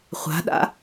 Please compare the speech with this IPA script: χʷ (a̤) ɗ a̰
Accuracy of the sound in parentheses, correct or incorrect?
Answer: correct